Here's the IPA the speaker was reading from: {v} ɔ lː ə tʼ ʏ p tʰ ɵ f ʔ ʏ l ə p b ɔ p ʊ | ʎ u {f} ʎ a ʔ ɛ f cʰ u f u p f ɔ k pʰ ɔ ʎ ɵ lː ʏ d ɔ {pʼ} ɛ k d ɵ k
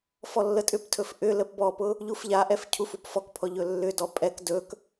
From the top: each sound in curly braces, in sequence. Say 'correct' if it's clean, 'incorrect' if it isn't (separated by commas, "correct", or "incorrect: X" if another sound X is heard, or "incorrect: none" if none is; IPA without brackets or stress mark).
incorrect: f, correct, correct